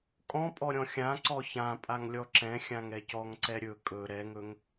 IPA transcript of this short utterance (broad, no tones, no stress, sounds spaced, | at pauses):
kʼ ɔ̃ pʼ ɔ ɾʲ ɔ̃ xʲ ã ǀ ɔ ç ã pʼ a ŋ lʲ ɔ ǁ ɛ̃ xʲ ã ŋ ɛ c ɔ ŋ ǀ ɛ ɾʲ ɵ kʼ ɵ ɾ ɛ ŋ ɵ ŋ